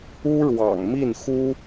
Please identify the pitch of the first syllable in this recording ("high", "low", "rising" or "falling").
high